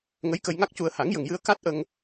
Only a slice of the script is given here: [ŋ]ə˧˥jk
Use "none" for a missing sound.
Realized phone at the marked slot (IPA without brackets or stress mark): ŋ